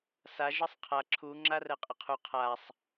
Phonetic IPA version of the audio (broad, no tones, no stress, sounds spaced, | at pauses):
s a ʒ ə sˤ qʰ a ǁʰ u ŋ͡ǁ a r ɛ qʼ ə qʰ u qʰ a sˤ